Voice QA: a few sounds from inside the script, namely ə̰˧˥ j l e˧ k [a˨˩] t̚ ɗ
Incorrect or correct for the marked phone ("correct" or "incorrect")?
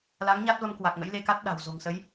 incorrect